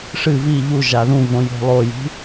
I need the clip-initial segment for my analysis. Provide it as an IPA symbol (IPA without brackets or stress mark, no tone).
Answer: ʂ